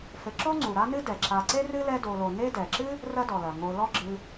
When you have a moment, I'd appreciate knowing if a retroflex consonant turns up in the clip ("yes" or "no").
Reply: no